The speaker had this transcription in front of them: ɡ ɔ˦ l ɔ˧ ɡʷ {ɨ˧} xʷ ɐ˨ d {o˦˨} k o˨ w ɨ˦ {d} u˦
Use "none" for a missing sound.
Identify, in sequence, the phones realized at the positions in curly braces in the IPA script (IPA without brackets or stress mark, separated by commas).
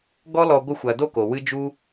ɨ˧, o˦˨, d͡ʒ